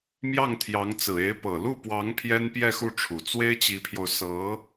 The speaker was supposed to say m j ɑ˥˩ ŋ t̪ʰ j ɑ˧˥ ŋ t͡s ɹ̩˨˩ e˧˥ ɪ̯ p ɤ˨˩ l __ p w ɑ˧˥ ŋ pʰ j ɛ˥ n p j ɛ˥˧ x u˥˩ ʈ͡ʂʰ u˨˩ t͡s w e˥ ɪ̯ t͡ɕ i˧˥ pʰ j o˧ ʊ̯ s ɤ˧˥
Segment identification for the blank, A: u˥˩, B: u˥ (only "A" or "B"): A